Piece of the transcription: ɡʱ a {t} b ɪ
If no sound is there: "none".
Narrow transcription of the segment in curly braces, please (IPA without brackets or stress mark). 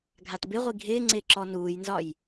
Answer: t